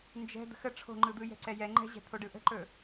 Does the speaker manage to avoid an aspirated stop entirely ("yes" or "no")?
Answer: no